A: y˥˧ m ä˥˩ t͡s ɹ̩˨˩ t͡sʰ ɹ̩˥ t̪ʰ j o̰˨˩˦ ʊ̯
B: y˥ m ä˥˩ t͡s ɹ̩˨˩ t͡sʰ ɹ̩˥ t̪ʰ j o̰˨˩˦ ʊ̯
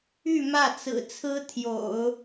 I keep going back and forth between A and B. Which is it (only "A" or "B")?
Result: A